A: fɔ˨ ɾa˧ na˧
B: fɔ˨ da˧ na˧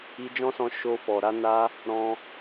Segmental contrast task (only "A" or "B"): A